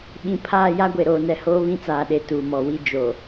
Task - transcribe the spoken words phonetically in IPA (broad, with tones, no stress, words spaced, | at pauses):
ɓĩ˨pʰaː˦˨ja˦ɡʷe˨ ɾoː˨nɛ˨hoː˦ βĩ˦t͡saː˨ɗe˨ tuː˨mɔ˨wi˦ d͡ʒo˨